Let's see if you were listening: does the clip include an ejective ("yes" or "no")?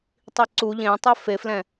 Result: no